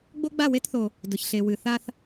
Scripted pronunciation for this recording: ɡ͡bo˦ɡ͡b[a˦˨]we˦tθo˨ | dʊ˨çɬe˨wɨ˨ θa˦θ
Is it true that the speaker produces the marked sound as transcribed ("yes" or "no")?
yes